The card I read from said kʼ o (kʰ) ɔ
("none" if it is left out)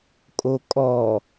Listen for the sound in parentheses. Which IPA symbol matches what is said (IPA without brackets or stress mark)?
kʼ